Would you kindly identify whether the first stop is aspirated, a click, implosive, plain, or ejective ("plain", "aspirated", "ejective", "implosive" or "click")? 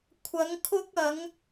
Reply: aspirated